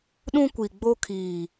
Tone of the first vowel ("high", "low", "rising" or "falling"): high